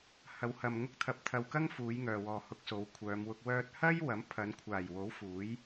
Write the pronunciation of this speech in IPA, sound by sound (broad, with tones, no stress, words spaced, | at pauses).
hɐ˨˧whɐ˨m ŋʊ˧k̚t̪ʰɐ˨p̚t̪ʰɐ˨w kɐ˥ŋfuː˨˧jŋœː˨wɔː˨ hʊ˧k̚so˨˧wkʷʰœː˨˧mwʊ˧k̚ wœː˧t̚hɐ˥j wɐ˨˥mpʰɐ˨˧nkʷʰaː˨˩jwo˨˥w fuː˨˥j